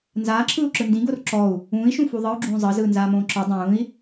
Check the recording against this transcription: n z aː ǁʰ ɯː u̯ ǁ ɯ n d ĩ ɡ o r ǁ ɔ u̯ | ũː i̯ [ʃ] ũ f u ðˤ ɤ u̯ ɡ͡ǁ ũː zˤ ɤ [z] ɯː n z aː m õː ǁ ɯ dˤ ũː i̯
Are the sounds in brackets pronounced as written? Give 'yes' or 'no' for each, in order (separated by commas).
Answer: yes, yes